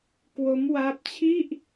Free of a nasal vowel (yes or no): yes